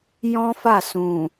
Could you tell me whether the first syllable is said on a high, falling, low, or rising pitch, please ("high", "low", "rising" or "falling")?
high